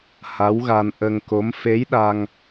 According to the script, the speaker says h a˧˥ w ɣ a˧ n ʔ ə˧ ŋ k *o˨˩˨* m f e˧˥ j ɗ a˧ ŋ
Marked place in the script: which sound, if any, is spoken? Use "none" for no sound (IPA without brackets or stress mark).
o˧˥